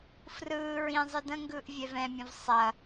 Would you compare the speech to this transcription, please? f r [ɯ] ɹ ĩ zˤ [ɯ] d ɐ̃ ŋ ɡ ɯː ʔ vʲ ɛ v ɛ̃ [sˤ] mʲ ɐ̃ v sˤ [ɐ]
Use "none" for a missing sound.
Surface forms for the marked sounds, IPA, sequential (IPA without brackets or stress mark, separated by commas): ɯː, ɯ, none, ɐ